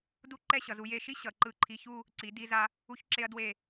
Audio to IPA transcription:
du˥˧ǃɛ˥˧ɕʌ˩˧z u˧je˧ʃi˥ ɕʌ˩˧ǃɯ˧˩ǃʰi˧ çu˥˧ | ǀi˩˧ di˧za˧ | u˧çǁe˧ɐ̯ dwe˧˩

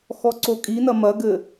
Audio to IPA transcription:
xɔǀokʼinɐ mɐɡɘ

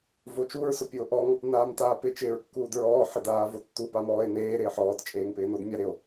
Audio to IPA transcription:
vot͡ʃuɹ sopʲuo̯ʔɔŋ | naːmtaːpɪ t͡ʃɪːɹkːuːdɹɔː ħɪdaːvotːu pamɔːe̯neː ɾɪːħɔːt t͡ʃʼeːŋpɪːnodmʲa ɾɪo̯

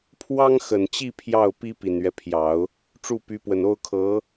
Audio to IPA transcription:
pʰwɑ˥ŋxə˨˩nt͡ɕi˥˧ pʰjɑ˥˩ʊ̯pi˥ pi˨˩nɥɛ˦pʰjɑ˨˩˦ʊ̯ | ʈ͡ʂu˥˩py˧˥pwə˨˩no˥ʊ̯ kʰɤ˧˥

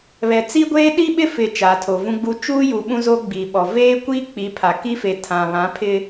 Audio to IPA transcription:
βɛ˨t͡si˦ɡʷeː˦ ɗi˦ɓɪ˦fɪ˨ t͡ʃa˨tʰo˨vũ˦ɡ͡bu˦ t͡ʃuː˦ju˨ ɓũ˦zo˦ɡ͡biː˨ɓɔ˨ veː˦kʷiː˦ k͡pi˨˦pʰa˨kiː˦fe˨ tʰã˨βã˨˦pʰɪ˦

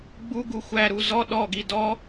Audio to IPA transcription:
ɡ͡bu ɡuxʷæɾu zɔ ɗɔɡi dɔ

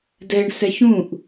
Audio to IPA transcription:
dɛɳ sɛçũʔ

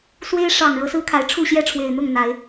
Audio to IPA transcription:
swe˦ɪ̯ ʂɑ˨˩ŋ ɻɤ˨˦sɹ̩˦kʰa˨˦ɪ̯ ʈ͡ʂʰu˥˨ɕjɛ˥˨ʈ͡ʂʰwe˨˩ɪ̯n̪ʊ˥˨ŋ n̪a˨˦ɪ̯

